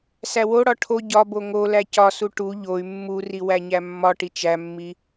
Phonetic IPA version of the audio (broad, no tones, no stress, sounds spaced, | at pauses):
s æ w o ɽ ɒ ʈʰ o ɟ ɒ b o ŋ o l æ c ɒ s u ʈ u ʎ o y̯ mː u r i w æ ɲ æ mː ɒ ʈ i t͡ʃ æ mː i